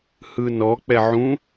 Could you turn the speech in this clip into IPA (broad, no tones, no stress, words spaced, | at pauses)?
hɯnɔk͡pɛ ʕũ